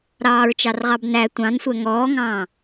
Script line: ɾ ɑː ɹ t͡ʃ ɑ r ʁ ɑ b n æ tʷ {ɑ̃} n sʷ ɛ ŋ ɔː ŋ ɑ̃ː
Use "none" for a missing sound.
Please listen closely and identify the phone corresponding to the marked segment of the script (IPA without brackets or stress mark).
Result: ɑ̃